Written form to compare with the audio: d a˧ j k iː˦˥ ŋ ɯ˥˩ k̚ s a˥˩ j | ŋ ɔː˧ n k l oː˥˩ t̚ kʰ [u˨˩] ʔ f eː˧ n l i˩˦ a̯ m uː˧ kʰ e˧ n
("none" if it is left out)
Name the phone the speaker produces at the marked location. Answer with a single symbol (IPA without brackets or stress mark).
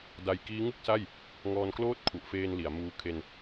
u˨˩